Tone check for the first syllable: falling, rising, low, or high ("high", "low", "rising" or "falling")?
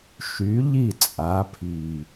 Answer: rising